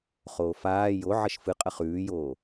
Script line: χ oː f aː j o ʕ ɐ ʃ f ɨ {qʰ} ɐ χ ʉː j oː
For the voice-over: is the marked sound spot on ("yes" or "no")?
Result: no